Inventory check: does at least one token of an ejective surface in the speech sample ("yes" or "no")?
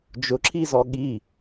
no